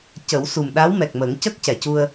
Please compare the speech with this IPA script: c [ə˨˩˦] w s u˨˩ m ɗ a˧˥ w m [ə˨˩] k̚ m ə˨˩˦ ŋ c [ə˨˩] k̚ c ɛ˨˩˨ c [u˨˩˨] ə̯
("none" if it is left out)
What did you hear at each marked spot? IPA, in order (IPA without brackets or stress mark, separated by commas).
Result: ə˨˩˦, ɛ˨˩, ə˦˥, u˧